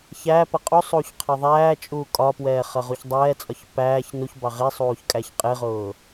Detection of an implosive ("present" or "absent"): absent